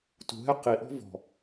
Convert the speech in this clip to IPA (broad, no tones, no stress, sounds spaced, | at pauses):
t ṳ ɦ ɛ q i ʔ ɔ̤ v ɔ̤